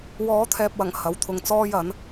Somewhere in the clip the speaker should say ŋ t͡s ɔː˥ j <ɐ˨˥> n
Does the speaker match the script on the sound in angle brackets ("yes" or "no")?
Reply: yes